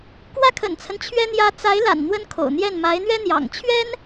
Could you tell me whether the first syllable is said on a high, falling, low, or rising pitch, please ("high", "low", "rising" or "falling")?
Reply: falling